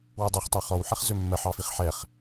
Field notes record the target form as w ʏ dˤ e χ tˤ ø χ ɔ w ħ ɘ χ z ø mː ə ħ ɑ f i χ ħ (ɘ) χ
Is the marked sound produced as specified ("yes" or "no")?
no